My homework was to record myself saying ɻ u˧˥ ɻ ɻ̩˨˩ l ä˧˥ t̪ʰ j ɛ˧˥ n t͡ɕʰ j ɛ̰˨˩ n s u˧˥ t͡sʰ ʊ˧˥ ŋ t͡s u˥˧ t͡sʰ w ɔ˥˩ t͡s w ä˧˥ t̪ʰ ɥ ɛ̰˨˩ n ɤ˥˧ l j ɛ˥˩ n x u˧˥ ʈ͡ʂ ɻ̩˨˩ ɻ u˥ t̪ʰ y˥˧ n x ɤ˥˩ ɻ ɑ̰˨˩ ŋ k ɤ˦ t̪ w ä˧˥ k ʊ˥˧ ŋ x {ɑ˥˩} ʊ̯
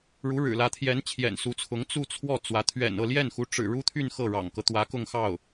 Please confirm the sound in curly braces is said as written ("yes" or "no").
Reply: yes